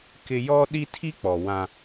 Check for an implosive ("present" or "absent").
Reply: present